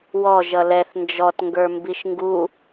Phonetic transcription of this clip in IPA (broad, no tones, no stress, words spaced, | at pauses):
wɔ ʒʌlɛθ nd͡ʒɔtŋɡə˞ mbiʃŋɡu